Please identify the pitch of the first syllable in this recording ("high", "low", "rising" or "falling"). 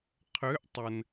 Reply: rising